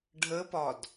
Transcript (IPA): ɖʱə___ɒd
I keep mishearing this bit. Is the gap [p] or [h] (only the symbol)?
p